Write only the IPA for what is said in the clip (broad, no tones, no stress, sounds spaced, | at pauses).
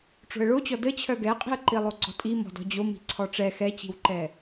ʈ͡ʂ o̤ ə̯ ɭ o t͡ɕ ɔ d ə t͡ɕʰ œ ɡ ɛ qʼ i̤ ə̯ ǃ i lˠ o ɡ͡ǀ ɔ̤ tʼ i m ɔ̤ d ɔ̤ d͡ʑ o m i̤ ǀʰ ɔ ʈ͡ʂ ɛ x ɛ t͡ɕ i̤ w ǃ ɛ